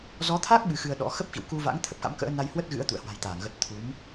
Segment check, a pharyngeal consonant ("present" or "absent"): absent